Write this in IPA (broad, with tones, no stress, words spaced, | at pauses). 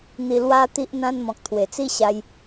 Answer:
n̪i˧lwa˦ t̪i˦ʔn̪ã˦n mɔ̃˨k̚t̪ʰwe˨˩t͡si˦ɕa˧j